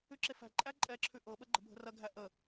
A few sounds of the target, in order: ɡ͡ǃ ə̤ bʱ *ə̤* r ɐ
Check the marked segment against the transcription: correct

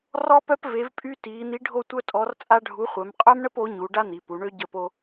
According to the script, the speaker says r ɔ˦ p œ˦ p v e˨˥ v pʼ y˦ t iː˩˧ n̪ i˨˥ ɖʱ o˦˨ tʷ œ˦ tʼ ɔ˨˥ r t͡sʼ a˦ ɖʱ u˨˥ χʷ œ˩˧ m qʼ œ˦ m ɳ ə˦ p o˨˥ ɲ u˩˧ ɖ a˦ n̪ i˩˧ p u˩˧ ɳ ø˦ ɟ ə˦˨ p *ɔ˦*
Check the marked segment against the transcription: incorrect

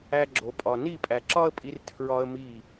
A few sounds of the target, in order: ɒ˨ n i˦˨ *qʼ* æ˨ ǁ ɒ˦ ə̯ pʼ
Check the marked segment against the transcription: incorrect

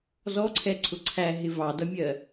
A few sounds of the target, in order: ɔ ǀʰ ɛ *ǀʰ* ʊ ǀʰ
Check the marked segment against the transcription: correct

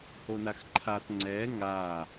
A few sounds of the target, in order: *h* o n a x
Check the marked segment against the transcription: correct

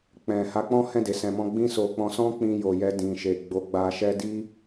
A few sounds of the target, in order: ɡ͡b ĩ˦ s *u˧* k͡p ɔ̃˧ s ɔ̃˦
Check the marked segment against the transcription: incorrect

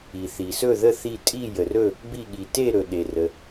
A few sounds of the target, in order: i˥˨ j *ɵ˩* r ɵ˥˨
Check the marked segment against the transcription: incorrect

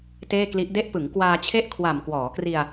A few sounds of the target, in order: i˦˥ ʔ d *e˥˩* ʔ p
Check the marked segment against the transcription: incorrect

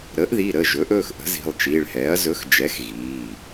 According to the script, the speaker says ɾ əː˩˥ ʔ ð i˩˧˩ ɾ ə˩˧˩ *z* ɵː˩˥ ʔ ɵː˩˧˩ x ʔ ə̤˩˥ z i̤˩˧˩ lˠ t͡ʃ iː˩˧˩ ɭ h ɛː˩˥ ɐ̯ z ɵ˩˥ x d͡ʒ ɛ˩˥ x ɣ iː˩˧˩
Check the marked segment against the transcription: incorrect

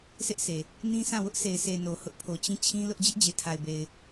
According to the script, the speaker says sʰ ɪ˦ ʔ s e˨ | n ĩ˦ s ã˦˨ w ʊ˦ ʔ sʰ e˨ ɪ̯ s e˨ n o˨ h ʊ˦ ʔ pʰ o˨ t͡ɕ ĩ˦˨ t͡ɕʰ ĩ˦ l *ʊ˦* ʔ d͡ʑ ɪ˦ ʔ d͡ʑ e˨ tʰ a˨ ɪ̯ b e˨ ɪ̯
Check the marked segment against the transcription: correct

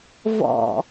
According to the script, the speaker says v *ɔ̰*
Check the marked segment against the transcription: correct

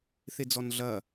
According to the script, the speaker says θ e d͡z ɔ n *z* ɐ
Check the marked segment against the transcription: incorrect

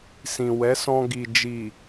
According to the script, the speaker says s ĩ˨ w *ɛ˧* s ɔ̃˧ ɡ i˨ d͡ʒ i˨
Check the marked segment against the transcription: incorrect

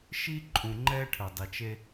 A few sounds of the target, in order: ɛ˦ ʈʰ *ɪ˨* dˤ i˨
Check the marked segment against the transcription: incorrect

